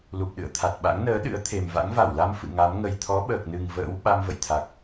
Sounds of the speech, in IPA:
lu˨˩p̚ɗɨ̰˧˨ə̯t̪ʰa˨˩t̚ɓa̰˧˥ŋ nəː˨˦ ɗɨ̰˧˥ə̯t̪ʰe˨˩mva̰˧˥ŋ va˧˩wla˧m fɨ̰˧˨ŋa˨˦m ŋə˨˩jt̪ʰɔ˨˦ɓəː˨˩k̚nɨ˨˩ŋ və̰ː˧˥w ɓa˧mvə̰˧˨jt̪ʰa˨˩k̚

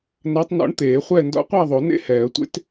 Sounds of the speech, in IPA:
na˧˥tˤnɔ̰˧˥ɳt̪eː˨˩˦χʷɛ˥˨ ndɔ̰˧˥qʷæ˥˨ðˤo˨˩˦nḛ˥˨ hɛː˨˩˦ə̯tʷḛ˧˥t

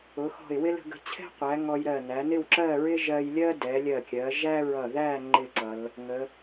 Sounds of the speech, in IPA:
ʊ˩˧xɔ̤˧˩ɪ̯wɪ˥ lə̤˧ɡə̤˧t͡ɕʰɛ̤˥ qʷæ˩˧ ŋɔ˧jɾɜ˧˩ næ˩˧nɪ˥˧wǁɜ˥˧ɹɪ˥ ʒɜ˧jlʲɜ˥ dɛ˩˧lʲɜ˧˩kʲɜ˩˧ ʒæ˥ɹʌ˧˩ðæ˥˧ ŋ͡ǃɪ˥˧ǀʌ˩˧l | ŋə˩˧

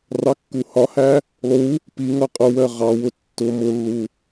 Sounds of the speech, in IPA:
rɑkːuhɒhæ | lˠu | pi ŋʌqʼʊwɜ ʁɑwʊ tːʊ mʊlːu

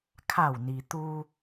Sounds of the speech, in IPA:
kʰa˧˩wni˩ t̪u˧

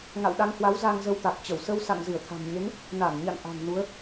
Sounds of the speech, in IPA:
ŋa̰˧˨wɗa˧ŋhwa˨˦w za˧ŋzə˧wt̪a˨˩k̚ t͡ɕə˧˩wsə˧w sa̰˧˨ŋzɨ˧˩ə̯t̪ʰa̤˨˩mɲe˨˦ŋ | na˧˩nɲa̰˧˨n ʔa̤˨˩ŋ nu˨˦ə̯

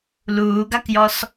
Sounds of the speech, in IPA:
luːɡakjɔs

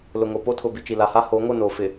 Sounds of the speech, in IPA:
lʊ˨ŋo˨ po˦tʰʊ˨bi˨ t͡ʃi˨la˨ha˦ ho˨˦ŋo˦˨ no˨ fɪ˨

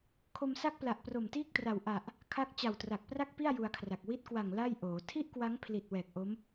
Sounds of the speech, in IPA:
kʰo˧msa˥˩k̚pla˨˩ʔ pro˨˩mtiː˥˩k̚tra˨˩w ʔa˨˩ʔ | kʰa˦˥k̚ t͡ɕa˨˩wtra˨˩k̚pra˥˩k̚pi˥˩a̯ ju˧a̯kʰra˨˩k̚ wi˦˥t̚kwa˨˩ŋ la˥˩jʔoː˩˦ tʰi˥˩ʔkwa˦˥ŋpʰli˨˩t̚ wɛː˨˩k̚ʔo˦˥m

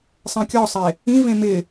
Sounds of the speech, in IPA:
sˤɛ̃kʲɔsˤe | ĩvẽ mɪ

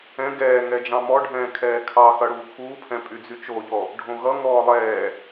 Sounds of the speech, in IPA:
ɛ̃ ɡɛː ŋɛd͡ʒɑ̃mɔɖʱɛ̃ː kʰɛːkʰɑxʌ ɽuːkʰuːpʰɛ̃ pʼyd͡zyt͡ʃoʎɔ | ɖʱõɣʌŋɔː lˠɛː

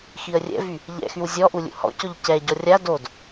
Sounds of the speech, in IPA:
xiə̯rʲɛ̰vy | ʎɛ̰xyw zʲɔʔu lʲṵhɔ̰cɔʎ cɛɟɔ rʲa dod

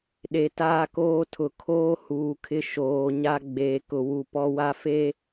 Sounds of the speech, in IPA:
ɗe˨taː˦koː˦tʰʊ˨ kʰoː˦ huː˨kʰɪ˦ ʃoː˨ɲa˦ ɡ͡beː˨kʊ˨wu˨ pɔ˦wa˦fe˦

